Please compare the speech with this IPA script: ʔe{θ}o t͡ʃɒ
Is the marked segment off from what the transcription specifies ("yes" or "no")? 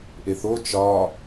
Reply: no